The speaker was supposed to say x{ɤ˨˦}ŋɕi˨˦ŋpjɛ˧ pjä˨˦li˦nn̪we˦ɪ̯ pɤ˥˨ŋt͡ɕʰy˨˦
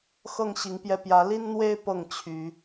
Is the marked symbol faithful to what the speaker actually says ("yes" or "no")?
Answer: no